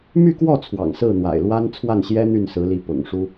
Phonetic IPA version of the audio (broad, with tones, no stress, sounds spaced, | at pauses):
m y˥˧ k w ɔ˥˩ t͡sʰ w ɑ̰˨˩ ŋ s ɹ̩˥˩ n̪ w a̰˨˩ ɪ̯ l w a˥ n t͡sʰ w a˥˩ n ɕ j ɛ˥ n̪ y˥˩ n s ɹ̩˧˥ l i˧˥ p ʊ̰˨˩ ŋ ʂ u˥